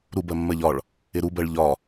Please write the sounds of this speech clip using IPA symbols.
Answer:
ɾubɜ mːɜʎɒɭ | ɪɾubɜɭ ʎɒ

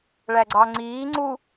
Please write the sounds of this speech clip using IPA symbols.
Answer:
ɭæɡ͡ǀɑŋ͡ǀiː ŋ͡ǀu

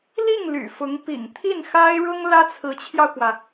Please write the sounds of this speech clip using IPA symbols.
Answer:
li˥˩ŋ ly̰˨˩fʊ˧˥ŋ pḭ˨˩ŋt̪ʰi˥˩nxa˥ɪ̯ɻʊ˥ŋ lä˥t͡sʰɹ̩˧˥t͡ɕʰjɑ˧ʊ̯kwä˩

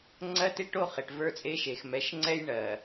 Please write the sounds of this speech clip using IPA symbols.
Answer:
ŋ͡ǀɜ˦te˦ ʈo˦χe˨ʈ və˞˦t͡sʼe˦ʃe˨x mɛ˨˦ʃŋ͡ǀɛ˦j ɳɜ˨

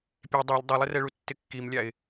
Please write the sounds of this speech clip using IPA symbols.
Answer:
pʲe dˤalʲ dˤɛlˠɪrɛɭu tːɪkːimlʲaɪ̯

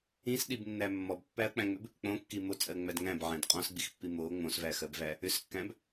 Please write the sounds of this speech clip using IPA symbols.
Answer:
ĩsɗibnːæ mːɔbpːæɐ̯k͡pæ̃ŋ͡mʏb | k͡põkːi mot͡sʼɜŋ͡mæd ŋæ̃bʕæ̃d qʼɔ̃sɡ͡bixpːi mo ŋ͡mõsvæxɜbvæ | ʏskːæ̃b

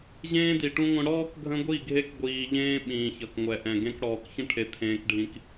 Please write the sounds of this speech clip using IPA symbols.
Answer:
ʑẽː˦di˨ʈũ˦ŋʷə̃˦ ɽɔː˦k ɡʱə̃˦ɡʷi˦˨ɡʱe˦k ɡʷiː˨ʎẽː˦ ɓĩː˨çʌ˨kŋʷɛ˨ʔɛ̃˨ ɡẽ˦kɽɔː˨k çə̃˦ʈʰe˨ t̪ʰẽː˦kɖʱĩ˦k

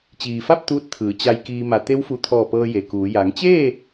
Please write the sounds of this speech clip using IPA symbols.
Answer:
t͡ɕiː˩fa˥˨p̚ t̪uː˧˥t̚t̪ʰɯː˩˧ t͡ɕa˧jkiː˧ma˧˩ t̪e˧˥wfu˧˩t̪ʰɔː˧˩ pɤː˧je˩kuː˩˧ ja˩˧ŋt͡ɕeː˥˨

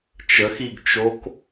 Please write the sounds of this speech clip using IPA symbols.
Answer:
t͡ʃəxiɡt͡ʃok

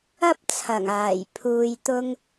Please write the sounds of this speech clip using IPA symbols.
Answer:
ɐ˥p̚t͡sʰɐ˨˩ŋaː˨˩j pʰuː˧jt̪ʊ˥ŋ

